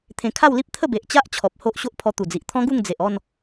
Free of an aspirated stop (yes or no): no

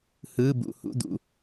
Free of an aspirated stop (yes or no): yes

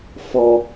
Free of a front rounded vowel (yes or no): yes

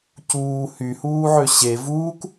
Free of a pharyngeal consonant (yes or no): no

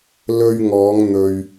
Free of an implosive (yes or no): yes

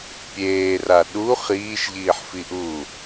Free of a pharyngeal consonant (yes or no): no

